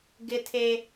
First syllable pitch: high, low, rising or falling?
high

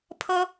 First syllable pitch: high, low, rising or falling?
high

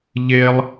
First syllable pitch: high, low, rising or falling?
high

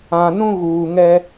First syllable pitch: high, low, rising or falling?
low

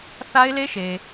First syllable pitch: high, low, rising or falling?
high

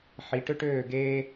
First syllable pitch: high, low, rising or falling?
rising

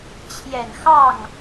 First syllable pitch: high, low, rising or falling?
low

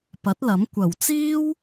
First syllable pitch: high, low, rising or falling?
rising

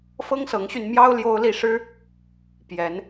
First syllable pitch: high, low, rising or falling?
high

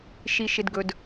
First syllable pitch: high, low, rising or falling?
low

